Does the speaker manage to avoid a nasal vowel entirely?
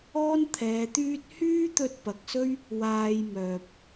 yes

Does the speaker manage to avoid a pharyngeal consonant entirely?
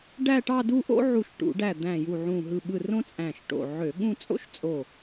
no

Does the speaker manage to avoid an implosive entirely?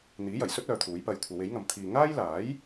yes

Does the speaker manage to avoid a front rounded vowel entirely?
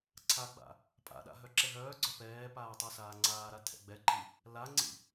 no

